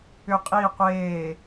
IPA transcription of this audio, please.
ʏ qʼ iː qʷ eː

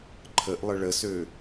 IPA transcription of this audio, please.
ǃʰ ə ʔ lˠ ə ɭ ə s ø

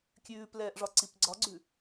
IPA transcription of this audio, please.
kʲ ʉː p l ɛː ʔ ʐ ɒ ǀ i p ɡ͡ǀ ɒ ɡ͡ǀ ʉ

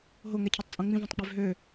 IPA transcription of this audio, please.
ɦ o ŋ ɛ cʰ ɯ tˤ t͡sʼ õ ŋ͡m ĩ v õ tˤ k͡p ø v ɦ ø

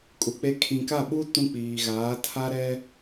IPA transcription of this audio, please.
kʼ u˨ k͡p e˦ kʰ ĩ˨ k a˦˨ ɓ u˦ t ũ˦ k͡p iː˨ ɣ aː˨˦ tʰ a˦ ɾ ɛ˦

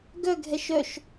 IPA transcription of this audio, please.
ɡ œ ɡʱ ɛ ʃ œ ʃ

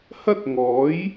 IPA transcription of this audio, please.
h ɐ˥ t̚ ŋ ɔː˨˥ j

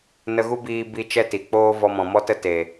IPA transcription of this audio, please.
n ə˧ ɣ u˦ b iː˧ b i˧ t͡ʃ ɛ˦ t i˨ k͡p oː˦ v ɔ˧ m ɔ̃˨ m ɔ˦ t ə˦ t e˨

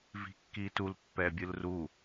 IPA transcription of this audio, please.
v i̤ kː i t u l pː ɛ bʲ ɯ l r u

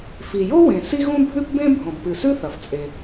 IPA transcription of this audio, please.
f i˩ j o˥ w ẽ˩ s i˥ ɣ ũ˥ bʱ ʉ˥ p b ẽ˥ bʱ õ˩ b p ɨ˩ s ʉ˥ θ ɐ˩ f t͡sʼ e˩

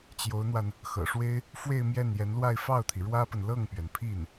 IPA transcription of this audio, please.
t͡ɕ j o˧˥ ʊ̯ n̪ w a˧ n | x ɤ̰˨˩ ʂ w e˥ ɪ̯ | f w e˥˧ ɪ̯ m j ɛ˥˩ n j ɛ˧˥ n l w a˥˧ ɪ̯ f ɑ˥˩ ʊ̯ t̪ʰ i˩ ɻ w ä˥ p ə˨ n l ɤ˥˩ ŋ p ɥ ɛ˩ n pʰ i˥˩ n

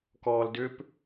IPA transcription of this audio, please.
k ɔː l d ʏ p

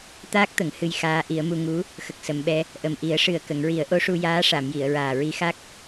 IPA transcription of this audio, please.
t̪ aː˦˥ k̚ t̪ ə˨˩˨ ŋ h ɨ˧ j x aː˧˥ ʔ i˨˩˦ ə̯ m u˧ ŋ u˧˥ | x ə˨˩ k̚ s ə˨˩˨ m ɓ ɛ˧ | ʔ ə˨˩ m ʔ i˨˩˦ ə̯ ʂ ɨ˨˩ ə̯ k ə˨˩˨ ŋ ɹ i˨˩˦ ə̯ ʔ o˧˥ ʂ u˧ j aː˧˥ ʂ a˨˩˨ m j i˨˩˨ ə̯ ɹ aː˨˩ ɹ i˧˥ x a˦˥ k̚

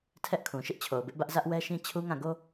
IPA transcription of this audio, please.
tʰ ɛ˦ ʔ kʰ ũ˨ ʃ ɪ˦ ʔ t͡ɕʰ o˨ ʊ̯ b ɪ˦ ʔ b ä˦ ʔ z ä˦ ʔ w ɛ˦ ʃ ĩ˦ t͡ɕʰ u˦ ŋ ã˦˨ ɡ o˦

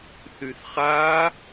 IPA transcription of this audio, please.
θ y θ χ a

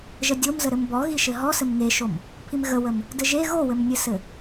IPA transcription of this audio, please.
ʒ ə dʲ o m z ə ɾ ɘ m b ɔ ɣ i ʃ ɘ ɦ ɔ s ɘ m ŋ e ʃ o m | pʰ i m ɣ ə w ə m | d ɘ ʒ e ɣ o w ɘ m nʲ ɘ s ɘ

